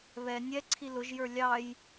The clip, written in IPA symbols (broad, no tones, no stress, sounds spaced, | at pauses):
β ɛ nʲ ɛ ǀʰ i l ʊ ʒ j ə˞ lʲ ɑ j